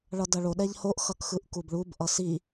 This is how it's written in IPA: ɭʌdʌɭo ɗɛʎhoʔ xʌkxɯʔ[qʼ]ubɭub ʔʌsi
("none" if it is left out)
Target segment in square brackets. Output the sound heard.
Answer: k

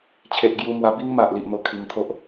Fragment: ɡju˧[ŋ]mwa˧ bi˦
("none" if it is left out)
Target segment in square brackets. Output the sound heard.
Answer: none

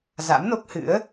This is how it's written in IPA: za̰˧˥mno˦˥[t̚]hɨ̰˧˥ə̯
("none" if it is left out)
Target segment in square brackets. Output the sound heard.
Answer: k̚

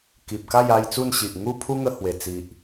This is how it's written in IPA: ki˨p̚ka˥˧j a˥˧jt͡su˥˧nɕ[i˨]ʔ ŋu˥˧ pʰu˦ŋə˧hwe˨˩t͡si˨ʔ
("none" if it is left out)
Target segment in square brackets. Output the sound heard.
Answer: i˨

